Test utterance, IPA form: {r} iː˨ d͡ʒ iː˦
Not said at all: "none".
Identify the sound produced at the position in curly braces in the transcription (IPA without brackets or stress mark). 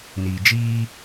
n